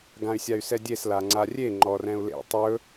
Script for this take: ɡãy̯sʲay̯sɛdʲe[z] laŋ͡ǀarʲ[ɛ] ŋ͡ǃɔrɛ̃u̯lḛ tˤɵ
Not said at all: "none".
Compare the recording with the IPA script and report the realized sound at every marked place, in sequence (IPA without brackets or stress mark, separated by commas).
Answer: s, e